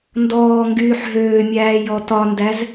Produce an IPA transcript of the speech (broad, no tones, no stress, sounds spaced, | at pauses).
n d ɔː ŋ ɡ yː ħ ɦ øː mʲ æː j ɔ t ɒ n d æ z